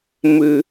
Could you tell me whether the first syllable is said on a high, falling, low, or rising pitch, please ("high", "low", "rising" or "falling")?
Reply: low